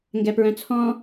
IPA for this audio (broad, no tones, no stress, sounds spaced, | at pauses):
ŋ ɡ ɛ p ɹ œ̃ t͡sʰ ɔ̃